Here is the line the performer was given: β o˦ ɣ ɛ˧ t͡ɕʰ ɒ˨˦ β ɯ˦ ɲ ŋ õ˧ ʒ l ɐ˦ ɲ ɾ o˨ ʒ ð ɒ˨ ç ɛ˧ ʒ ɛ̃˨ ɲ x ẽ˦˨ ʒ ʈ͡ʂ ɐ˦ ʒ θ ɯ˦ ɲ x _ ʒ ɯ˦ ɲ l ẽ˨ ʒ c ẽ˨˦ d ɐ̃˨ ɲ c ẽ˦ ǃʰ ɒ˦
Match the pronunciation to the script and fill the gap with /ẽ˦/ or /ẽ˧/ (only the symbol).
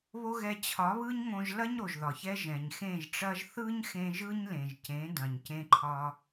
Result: ẽ˧